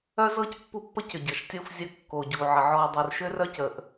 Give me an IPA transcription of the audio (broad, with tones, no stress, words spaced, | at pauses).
œ˦zɤ˦c pːu˦pːə˦cʏ˨ɟɤ˨ʃ tʲo˦f zʲə˦˨kːo˨ɟu˨ʕə˨ ʕɔ˨dˤo˨r ʃʏ˦rœ˦cə˨ʔ